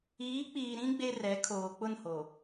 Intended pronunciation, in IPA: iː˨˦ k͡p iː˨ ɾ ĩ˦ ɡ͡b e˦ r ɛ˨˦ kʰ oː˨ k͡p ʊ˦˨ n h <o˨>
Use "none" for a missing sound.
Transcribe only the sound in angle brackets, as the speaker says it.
o˨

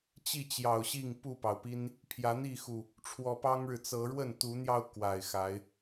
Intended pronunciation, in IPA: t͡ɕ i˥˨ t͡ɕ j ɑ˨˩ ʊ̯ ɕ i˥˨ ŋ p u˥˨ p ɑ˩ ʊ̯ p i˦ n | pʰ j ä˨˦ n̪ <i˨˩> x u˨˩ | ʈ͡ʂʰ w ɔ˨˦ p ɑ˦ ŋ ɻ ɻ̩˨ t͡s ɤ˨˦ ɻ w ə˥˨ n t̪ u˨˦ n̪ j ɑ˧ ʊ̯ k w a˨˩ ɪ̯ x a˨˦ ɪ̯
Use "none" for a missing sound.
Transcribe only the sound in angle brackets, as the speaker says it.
i˥˨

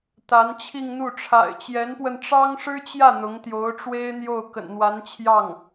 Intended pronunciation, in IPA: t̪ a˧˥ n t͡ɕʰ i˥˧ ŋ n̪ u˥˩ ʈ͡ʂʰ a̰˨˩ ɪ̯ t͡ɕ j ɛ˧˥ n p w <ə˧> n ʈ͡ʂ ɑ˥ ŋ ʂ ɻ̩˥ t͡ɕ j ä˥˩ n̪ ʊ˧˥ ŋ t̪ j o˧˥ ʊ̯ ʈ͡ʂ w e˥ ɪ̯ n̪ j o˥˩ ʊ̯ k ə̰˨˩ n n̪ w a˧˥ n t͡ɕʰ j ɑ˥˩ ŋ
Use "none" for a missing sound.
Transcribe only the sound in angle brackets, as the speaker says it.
ə˧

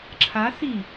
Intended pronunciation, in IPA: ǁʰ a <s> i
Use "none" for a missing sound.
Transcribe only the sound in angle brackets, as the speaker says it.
s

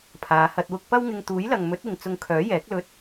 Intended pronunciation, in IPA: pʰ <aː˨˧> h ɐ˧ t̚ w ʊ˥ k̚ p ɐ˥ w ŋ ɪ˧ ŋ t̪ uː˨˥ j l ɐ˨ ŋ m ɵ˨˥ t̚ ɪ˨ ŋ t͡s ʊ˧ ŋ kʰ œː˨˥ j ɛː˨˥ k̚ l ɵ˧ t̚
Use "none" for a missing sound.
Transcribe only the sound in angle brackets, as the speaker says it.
aː˨˧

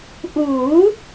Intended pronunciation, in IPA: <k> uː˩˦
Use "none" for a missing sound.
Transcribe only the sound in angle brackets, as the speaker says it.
ʔ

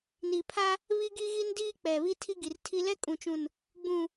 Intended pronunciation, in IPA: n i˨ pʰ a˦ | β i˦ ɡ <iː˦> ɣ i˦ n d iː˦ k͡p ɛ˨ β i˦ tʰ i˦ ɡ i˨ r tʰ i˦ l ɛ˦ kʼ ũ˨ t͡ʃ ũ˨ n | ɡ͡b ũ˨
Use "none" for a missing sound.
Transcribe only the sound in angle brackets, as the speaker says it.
i˦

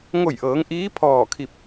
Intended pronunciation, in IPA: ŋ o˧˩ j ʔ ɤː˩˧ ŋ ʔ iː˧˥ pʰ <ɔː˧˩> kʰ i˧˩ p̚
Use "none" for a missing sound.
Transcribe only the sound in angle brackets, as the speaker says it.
ɔː˧˩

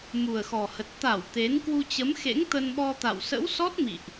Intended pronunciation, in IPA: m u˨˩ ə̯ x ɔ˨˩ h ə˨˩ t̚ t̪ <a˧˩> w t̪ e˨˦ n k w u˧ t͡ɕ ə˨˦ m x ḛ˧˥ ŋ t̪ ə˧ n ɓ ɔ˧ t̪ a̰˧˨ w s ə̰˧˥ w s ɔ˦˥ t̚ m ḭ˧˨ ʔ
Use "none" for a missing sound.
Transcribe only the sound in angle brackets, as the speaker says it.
a˧˩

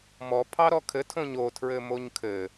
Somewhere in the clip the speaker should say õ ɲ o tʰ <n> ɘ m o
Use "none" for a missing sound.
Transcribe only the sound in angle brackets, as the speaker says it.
ɹ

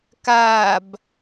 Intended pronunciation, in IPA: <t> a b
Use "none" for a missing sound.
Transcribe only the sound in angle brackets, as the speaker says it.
k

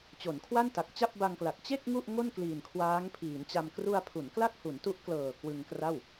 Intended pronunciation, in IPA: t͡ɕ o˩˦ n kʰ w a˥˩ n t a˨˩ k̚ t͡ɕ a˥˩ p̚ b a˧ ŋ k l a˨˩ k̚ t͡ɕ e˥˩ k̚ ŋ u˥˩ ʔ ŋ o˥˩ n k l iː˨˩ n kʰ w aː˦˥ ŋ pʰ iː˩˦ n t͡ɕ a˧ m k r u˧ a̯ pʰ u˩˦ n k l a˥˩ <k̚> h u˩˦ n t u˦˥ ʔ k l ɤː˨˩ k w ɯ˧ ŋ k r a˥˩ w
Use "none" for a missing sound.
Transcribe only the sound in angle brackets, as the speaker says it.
k̚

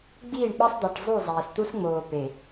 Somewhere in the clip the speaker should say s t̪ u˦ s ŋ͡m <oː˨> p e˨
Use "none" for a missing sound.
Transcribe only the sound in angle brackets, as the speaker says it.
oː˨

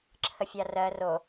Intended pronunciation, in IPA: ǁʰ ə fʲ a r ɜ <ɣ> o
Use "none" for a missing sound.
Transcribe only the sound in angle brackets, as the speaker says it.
r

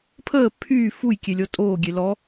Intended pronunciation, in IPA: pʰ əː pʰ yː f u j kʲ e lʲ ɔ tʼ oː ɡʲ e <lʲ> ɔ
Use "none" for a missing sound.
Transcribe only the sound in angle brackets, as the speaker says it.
l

